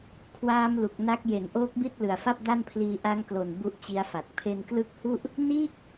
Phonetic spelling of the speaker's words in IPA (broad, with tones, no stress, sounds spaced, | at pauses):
kʰ w aː˦˥ m l u˨˩ k̚ n a˦˥ k̚ j e˩˦ n ʔ oː˦˥ k̚ b i˥˩ t̚ l ɯ˨˩ a̯ f a˥˩ p̚ d a˥˩ n pʰ l iː˧ ʔ a˦˥ ŋ k l o˨˩ n b u˥˩ ʔ t͡ɕ i˦˥ a̯ f a˨˩ t̚ pʰ e˧ n k l ɯ˦˥ k̚ h u˥˩ ʔ | n iː˥˩ k̚